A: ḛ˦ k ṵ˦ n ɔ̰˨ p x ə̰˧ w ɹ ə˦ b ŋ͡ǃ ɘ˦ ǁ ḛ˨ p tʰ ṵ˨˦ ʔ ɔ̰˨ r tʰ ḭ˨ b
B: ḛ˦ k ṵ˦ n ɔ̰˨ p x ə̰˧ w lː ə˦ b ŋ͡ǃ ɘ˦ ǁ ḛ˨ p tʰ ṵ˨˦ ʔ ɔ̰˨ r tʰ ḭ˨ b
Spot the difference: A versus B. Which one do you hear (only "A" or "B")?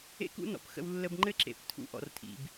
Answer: B